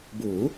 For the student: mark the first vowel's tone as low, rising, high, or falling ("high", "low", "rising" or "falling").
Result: rising